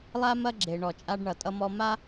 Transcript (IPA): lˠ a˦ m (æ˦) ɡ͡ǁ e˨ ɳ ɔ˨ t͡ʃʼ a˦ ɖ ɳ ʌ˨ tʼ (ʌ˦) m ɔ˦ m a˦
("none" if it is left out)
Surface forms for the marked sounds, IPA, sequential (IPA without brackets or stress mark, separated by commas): ɐ˦, ʌ˦